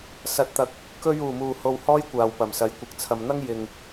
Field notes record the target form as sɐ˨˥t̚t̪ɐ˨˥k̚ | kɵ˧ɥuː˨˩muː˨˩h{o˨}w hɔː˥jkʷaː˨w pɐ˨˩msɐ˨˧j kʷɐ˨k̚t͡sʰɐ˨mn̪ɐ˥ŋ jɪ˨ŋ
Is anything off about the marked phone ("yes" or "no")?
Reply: no